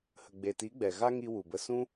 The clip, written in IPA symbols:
h ə˨ ɡ͡b e˨ t i˨˦ ɡ͡b ɛ˨ ɣ a˦ ŋ i˧ w u˨ b ə˧ s ũ˦

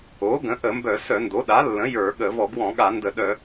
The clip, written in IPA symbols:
o˩˥ ɡ ə̃˩˥ ʔ ə˧˩˧ m b œ˧˩˧ s œ˧˩˧ n d o˩˥ ɗ a˩˥ lː ə̃˩˥ j ə˞˧˩˧ ɠ ə˧˩˧ v ɔ˧˩˧ ɡ w ɔ̃˧˩˧ ɠ a˧˩˧ n d ə˧˩˧ ɗ œ˧˩˧

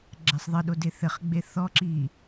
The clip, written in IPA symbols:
ɡ͡ǁ ɛ sˤ ðˤ ɘ ɗ o d e θ ɘ χ ɡ͡b e θ ɔ ǁ i

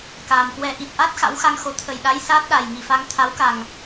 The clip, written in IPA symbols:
k aː˨˩ m k w ɛ˧ ʔ i˨˩ t̚ ʔ a˦˥ t̚ x a̰˧˥ w x a˧ ŋ x o˨˦ t̪ʰ ə˨˩ j ɗ a˨˦ j s aː˦˥ t̚ ɗ a˨˩ j ŋ i˨˩ f a˧ ŋ t̪ʰ a˨˦ w k a˨˩ ŋ

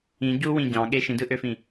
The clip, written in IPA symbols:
ĩ ɟ u w ĩ ɟ ɑ̃ ɠ e ʃ ĩ d ɯ ʔ ø f ĩ

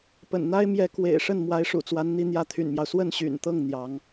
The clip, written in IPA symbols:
p ə̰˨˩ n n̪ a˥ ɪ̯ m j ɛ˧˥ k w ḛ˨˩ ɪ̯ ʂ ə˥˩ n m w a˧˥ ɪ̯ ʂ ṵ˨˩ t͡s w a˧˥ n n̪ i˧˥ n̪ j ä˧˥ t̪ʰ y̰˨˩ n m j ɑ˦ ʊ̯ s w ə˥˩ n ɕ y̰˨˩ n t̪ ɤ˥˩ ŋ n̪ j ɑ˧˥ ŋ

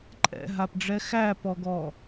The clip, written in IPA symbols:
ǃʼ ɛ̰ ɦ a p ɖ͡ʐ ɛ x æ p ɔ ɡ ɔ

